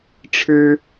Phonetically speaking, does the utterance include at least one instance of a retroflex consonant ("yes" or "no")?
yes